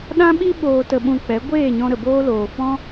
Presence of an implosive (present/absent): present